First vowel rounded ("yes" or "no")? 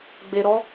no